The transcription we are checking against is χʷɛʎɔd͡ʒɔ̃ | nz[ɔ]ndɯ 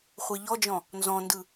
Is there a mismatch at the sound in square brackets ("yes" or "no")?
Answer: yes